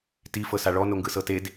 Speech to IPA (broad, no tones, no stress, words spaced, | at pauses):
ti fɤsaɭɔ noŋɡɯsɤted